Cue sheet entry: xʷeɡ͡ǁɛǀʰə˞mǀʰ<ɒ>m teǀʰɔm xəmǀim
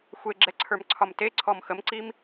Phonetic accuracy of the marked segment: correct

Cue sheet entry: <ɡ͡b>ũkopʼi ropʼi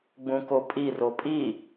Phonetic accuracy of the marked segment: correct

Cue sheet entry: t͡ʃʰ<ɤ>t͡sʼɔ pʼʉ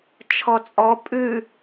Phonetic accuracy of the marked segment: incorrect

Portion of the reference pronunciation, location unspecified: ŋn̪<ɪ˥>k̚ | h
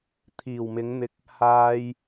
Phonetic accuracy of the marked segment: incorrect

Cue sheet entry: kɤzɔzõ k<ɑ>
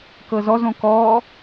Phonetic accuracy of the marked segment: incorrect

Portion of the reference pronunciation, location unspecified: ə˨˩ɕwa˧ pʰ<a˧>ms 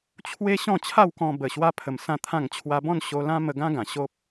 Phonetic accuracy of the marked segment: incorrect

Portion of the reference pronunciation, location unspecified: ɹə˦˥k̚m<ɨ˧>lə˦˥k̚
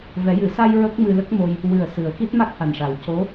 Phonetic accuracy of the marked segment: correct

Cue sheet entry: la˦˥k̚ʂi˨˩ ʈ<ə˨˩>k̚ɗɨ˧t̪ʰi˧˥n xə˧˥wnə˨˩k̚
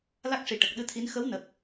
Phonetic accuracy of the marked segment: correct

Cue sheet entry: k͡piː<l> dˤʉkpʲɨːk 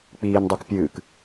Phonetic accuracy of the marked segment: incorrect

